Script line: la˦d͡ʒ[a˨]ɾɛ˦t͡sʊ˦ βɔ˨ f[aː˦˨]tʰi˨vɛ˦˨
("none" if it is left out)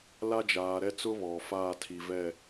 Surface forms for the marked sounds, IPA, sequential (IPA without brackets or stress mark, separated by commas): aː˨, aː˦˨